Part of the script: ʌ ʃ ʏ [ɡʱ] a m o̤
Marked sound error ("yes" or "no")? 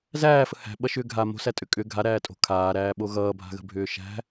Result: no